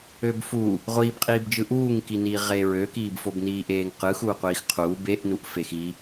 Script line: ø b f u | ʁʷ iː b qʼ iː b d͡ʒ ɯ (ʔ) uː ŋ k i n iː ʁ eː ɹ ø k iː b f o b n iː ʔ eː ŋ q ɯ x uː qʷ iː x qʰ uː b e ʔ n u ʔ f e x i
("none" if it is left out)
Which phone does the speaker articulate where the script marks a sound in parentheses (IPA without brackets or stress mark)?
ʔ